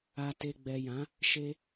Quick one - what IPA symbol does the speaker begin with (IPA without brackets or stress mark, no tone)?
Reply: a